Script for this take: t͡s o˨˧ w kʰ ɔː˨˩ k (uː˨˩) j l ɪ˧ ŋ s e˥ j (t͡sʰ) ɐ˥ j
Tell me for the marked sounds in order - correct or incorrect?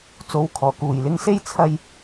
correct, correct

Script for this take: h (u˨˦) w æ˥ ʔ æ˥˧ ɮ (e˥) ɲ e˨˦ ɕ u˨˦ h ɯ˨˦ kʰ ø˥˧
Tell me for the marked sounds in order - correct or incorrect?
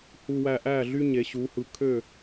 incorrect, incorrect

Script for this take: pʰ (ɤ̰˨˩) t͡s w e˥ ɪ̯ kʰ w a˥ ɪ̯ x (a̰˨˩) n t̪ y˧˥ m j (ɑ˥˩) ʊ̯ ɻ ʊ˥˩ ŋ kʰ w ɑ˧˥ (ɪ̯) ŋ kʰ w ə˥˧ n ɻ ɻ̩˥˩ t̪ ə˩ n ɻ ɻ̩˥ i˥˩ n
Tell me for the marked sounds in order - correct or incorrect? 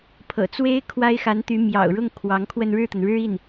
correct, incorrect, incorrect, incorrect

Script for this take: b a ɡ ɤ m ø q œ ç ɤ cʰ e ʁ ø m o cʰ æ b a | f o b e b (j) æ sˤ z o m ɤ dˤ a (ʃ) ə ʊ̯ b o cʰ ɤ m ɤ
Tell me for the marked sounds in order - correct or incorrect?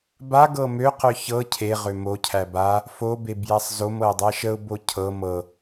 correct, correct

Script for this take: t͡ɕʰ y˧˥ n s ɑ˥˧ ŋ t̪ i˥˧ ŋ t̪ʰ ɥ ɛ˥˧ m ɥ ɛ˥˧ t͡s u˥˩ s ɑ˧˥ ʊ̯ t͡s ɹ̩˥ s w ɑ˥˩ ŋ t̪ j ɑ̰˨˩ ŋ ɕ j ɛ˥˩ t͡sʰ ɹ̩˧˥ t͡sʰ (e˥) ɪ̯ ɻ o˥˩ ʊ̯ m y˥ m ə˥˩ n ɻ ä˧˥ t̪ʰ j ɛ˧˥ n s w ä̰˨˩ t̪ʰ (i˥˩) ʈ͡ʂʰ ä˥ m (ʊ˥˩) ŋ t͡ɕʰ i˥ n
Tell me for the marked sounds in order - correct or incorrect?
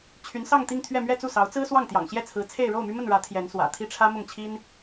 incorrect, correct, correct

